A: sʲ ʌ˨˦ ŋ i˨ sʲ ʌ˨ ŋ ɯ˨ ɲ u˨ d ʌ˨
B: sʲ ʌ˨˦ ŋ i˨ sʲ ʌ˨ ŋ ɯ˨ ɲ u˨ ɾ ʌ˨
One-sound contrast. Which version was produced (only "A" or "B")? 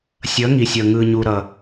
B